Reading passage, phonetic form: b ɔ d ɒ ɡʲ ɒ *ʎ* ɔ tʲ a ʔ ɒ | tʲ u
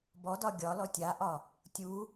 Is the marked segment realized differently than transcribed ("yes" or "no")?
yes